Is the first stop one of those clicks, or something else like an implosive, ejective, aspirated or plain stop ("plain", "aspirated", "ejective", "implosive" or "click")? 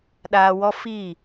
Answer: implosive